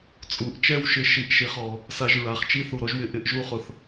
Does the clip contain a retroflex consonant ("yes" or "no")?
no